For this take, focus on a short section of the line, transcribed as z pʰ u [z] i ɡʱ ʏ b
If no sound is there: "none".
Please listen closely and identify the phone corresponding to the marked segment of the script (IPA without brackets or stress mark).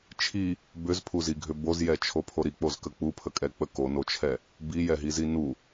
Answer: z